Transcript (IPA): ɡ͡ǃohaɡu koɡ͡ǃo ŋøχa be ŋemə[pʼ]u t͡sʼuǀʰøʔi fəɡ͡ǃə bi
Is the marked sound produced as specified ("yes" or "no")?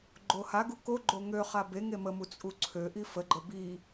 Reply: no